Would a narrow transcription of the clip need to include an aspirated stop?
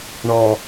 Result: no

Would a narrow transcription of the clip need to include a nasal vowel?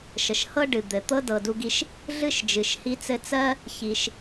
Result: no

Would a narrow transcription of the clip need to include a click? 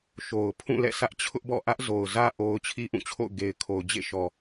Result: no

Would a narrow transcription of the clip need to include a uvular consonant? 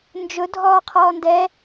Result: yes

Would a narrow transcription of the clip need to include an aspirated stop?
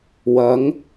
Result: no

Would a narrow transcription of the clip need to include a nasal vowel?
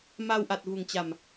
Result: no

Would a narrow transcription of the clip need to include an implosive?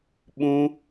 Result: yes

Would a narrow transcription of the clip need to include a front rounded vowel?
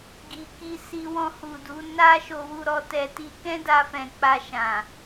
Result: no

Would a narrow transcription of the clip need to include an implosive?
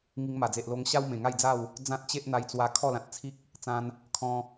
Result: no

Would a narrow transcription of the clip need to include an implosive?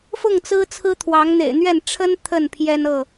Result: no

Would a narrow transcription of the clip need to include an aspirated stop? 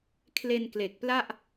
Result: yes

